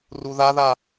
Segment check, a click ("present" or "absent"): absent